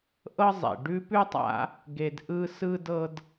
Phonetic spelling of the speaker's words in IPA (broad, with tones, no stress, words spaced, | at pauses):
ʔɤ˦zˤḛ˩ɖʉ˦ pʉ˥tˤa̰˦ | ɡe˨dʔɯ˦ sɯ˥dɤ˥d